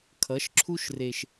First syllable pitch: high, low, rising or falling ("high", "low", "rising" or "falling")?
rising